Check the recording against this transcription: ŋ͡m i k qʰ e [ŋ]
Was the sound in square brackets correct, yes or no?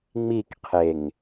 yes